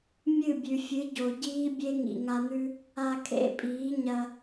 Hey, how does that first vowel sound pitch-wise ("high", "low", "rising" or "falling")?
falling